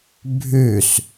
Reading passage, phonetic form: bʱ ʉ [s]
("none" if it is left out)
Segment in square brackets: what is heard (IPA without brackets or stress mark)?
s